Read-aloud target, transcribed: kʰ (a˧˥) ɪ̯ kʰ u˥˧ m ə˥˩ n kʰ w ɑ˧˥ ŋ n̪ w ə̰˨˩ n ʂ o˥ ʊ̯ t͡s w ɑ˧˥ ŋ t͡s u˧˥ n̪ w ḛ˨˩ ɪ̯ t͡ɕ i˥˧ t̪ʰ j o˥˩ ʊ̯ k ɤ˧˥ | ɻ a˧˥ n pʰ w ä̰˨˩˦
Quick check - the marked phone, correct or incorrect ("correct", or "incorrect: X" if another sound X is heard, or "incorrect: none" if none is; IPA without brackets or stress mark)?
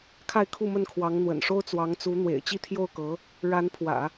incorrect: a˥˧